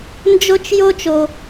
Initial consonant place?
alveolar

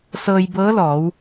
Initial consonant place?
alveolar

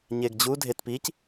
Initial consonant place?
palatal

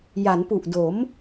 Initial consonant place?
palatal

